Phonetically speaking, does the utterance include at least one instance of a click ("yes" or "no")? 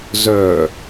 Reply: no